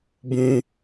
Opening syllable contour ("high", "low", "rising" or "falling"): high